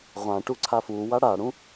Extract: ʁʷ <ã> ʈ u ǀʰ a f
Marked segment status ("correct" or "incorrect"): correct